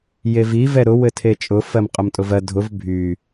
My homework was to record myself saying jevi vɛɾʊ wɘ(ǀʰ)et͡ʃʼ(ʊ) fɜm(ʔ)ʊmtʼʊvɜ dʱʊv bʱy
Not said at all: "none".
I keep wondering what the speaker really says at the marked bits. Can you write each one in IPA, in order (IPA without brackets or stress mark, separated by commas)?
tʰ, ʊ, qʼ